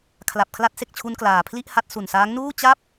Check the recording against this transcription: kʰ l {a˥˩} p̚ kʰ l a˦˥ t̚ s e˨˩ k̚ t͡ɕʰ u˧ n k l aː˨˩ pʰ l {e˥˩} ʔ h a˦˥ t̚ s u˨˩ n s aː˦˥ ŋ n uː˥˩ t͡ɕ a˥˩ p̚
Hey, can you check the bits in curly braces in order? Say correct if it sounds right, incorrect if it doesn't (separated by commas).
incorrect, incorrect